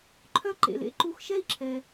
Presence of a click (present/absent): present